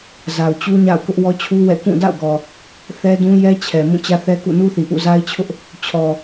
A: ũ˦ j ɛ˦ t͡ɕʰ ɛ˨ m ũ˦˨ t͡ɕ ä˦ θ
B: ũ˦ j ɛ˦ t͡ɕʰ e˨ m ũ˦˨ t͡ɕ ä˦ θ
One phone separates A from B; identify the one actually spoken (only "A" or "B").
A